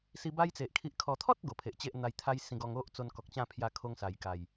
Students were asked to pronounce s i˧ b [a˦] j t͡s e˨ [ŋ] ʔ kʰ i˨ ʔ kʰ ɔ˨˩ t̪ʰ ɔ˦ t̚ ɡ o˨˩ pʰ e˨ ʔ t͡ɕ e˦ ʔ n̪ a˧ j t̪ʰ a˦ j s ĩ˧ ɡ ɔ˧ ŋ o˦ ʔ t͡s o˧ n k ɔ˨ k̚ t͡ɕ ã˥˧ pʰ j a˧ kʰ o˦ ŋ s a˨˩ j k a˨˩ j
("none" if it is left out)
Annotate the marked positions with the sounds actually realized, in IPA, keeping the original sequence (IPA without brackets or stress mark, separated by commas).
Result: a˦, none